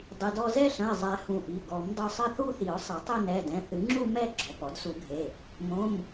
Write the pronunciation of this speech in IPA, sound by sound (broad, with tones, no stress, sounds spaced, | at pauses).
dˤ i˩˧˩ d ɔ˥˧ z ɛ˥˧ ɬ ɐ̃˩˧˩ ɪ̯ zˤ ɛ˨˩˦ h ũ˩˧˩ ʔ i˩˧˩ ɡ ɔ˨˩˦ m dˤ u˩˧˩ sˤ ɘ˥˧ θ u˥˧ θ i˨˩˦ ʊ̯ sˤ ɘ˨˩˦ tˤ ɘ˥˧ n ɛ˩˧˩ d ɛ̃˩˧˩ θ ɨ˨˩˦ ŋ͡ǁ u˥˧ m ɛ˥˧ ɡ͡ǁ ɔ˩˧˩ p ɔ˨˩˦ d s u˨˩˦ ɡʱ e˩˧˩ | m õ˩˧˩ m